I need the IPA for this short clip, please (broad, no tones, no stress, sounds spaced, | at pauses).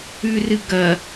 ʉ r ɨ ɡ ɐ